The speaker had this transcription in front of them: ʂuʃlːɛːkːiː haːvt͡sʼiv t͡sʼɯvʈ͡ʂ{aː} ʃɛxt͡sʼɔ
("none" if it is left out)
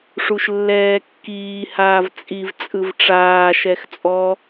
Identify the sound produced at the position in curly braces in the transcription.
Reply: aː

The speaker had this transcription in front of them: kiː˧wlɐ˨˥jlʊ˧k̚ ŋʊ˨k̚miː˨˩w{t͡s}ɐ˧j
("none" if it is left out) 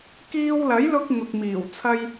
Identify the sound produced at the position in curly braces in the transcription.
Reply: t͡sʰ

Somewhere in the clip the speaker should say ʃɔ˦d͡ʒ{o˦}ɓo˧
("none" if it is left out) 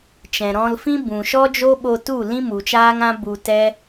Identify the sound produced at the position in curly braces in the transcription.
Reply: o˦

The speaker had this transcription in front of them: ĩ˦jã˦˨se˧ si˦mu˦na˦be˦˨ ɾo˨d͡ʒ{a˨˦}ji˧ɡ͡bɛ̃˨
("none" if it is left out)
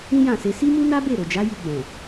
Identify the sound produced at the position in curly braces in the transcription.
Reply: a˨˦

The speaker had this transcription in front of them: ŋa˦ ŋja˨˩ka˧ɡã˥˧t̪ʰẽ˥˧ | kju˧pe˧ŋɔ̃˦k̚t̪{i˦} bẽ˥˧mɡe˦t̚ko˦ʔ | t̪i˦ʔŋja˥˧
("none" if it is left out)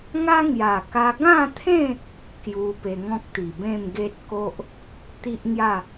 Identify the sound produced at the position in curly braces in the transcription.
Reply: i˨˩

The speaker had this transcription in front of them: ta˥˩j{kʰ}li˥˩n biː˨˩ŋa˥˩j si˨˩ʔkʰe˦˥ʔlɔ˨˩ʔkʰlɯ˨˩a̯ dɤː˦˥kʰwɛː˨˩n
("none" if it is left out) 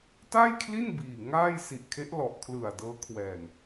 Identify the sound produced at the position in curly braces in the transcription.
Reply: kʰ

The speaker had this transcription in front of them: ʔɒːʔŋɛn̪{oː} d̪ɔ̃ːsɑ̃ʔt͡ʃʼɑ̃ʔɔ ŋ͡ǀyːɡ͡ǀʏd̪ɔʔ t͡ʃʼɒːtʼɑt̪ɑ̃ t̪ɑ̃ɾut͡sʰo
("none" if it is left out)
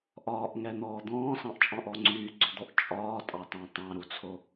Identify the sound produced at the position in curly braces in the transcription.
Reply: ɔː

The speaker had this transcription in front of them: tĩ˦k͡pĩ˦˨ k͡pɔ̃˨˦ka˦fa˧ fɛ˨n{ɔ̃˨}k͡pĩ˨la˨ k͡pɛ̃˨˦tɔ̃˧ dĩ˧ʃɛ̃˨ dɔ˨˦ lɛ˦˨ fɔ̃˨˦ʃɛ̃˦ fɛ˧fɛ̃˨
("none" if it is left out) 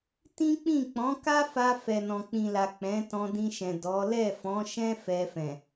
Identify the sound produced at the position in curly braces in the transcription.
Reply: ɔ̃˨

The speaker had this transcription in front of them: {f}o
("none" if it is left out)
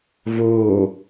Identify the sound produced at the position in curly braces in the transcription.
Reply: v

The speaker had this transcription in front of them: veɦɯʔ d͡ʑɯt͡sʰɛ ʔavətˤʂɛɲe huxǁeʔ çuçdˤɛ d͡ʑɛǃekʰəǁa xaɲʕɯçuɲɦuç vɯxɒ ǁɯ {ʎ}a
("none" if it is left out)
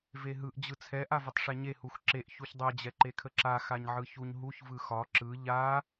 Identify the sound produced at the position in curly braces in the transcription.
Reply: ʎ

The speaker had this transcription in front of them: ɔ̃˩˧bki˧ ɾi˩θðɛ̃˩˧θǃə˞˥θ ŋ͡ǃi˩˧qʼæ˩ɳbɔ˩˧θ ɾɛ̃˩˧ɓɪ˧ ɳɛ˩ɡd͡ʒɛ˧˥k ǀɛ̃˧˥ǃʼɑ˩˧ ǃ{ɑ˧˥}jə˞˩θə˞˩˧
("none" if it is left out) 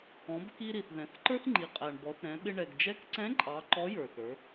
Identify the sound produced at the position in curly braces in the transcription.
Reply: ɔ˧˥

